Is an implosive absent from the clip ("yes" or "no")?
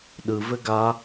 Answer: no